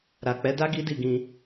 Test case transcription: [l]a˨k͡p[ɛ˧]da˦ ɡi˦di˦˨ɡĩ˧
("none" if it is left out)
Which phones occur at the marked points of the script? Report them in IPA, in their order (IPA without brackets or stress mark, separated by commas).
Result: ɾ, ɛ˨˦